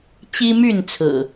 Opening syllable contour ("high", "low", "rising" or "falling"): high